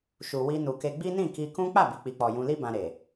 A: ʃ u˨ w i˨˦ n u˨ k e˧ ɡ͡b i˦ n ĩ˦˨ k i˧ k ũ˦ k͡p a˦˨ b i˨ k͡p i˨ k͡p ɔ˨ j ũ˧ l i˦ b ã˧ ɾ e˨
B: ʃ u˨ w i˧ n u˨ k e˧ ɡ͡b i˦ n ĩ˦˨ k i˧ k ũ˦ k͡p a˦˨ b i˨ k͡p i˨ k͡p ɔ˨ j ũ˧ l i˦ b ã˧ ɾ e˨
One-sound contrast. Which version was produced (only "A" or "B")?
B